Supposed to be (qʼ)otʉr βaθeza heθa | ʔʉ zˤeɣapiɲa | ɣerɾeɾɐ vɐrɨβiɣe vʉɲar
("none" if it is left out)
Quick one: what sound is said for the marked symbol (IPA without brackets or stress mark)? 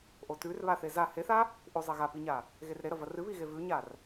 ʔ